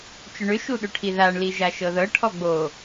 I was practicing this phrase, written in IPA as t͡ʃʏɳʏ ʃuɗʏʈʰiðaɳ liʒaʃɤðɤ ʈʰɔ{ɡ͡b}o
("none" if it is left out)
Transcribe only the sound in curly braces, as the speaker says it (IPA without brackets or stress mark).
ɡ͡b